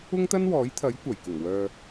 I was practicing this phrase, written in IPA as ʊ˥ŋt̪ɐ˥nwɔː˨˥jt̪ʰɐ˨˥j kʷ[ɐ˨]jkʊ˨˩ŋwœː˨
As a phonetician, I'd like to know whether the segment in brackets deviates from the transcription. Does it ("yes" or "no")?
yes